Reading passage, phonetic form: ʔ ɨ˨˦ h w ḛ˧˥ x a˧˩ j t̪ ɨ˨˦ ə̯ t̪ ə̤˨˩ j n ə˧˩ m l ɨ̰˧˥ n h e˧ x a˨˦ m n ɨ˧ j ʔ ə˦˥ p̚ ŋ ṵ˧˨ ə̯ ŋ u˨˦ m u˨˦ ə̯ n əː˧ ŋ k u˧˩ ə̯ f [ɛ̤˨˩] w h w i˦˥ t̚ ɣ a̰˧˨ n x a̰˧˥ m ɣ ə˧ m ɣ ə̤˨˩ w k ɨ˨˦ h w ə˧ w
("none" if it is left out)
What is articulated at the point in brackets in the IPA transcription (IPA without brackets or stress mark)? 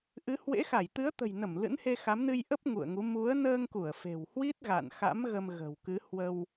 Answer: e̤˨˩